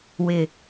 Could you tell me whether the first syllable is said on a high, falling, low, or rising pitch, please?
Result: low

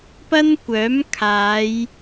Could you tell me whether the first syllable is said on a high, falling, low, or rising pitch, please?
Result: high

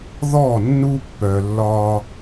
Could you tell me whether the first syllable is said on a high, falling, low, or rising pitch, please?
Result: falling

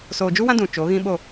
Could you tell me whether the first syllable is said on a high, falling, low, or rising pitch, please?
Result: low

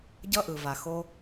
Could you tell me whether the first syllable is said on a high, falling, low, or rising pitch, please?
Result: high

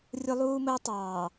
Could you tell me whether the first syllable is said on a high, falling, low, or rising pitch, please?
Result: high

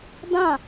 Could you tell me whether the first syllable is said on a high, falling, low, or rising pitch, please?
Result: falling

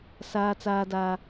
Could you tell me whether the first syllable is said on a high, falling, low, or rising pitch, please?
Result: high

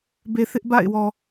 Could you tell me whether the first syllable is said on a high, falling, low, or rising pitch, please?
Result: low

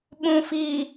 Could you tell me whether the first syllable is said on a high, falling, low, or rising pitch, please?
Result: low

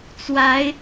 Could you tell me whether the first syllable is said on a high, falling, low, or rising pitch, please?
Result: rising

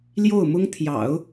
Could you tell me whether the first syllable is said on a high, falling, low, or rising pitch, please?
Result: falling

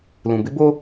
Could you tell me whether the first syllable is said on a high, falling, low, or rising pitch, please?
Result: low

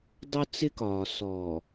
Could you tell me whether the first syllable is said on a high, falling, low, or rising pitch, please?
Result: high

